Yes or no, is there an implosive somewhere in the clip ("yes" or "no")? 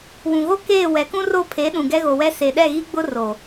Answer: yes